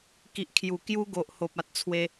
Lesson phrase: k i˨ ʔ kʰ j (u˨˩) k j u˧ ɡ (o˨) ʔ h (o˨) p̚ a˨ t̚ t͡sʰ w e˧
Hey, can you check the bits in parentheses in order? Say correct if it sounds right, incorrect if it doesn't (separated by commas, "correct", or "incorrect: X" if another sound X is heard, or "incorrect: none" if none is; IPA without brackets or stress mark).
correct, correct, correct